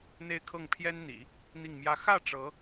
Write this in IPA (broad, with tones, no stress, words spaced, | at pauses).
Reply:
n̪e˥˧ɪ̯kʰɤ˥˩ŋpʰjɛ˥nn̪ḭ˨˩˦ | n̪i˥˩ŋmjä˥ xä˥˩ ʈ͡ʂɤ˧˥